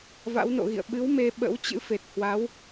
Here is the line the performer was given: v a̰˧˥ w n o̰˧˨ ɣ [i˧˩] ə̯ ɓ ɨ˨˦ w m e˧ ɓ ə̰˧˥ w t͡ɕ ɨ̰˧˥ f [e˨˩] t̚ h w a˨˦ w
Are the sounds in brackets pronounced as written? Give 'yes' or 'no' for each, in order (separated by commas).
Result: no, yes